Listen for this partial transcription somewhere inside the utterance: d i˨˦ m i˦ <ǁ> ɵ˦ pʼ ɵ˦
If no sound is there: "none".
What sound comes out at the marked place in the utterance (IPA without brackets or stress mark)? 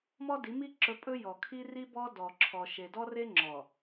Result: ǁ